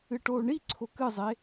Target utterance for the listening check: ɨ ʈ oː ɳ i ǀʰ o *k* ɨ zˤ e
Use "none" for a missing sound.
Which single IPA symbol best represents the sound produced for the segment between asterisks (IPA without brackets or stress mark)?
k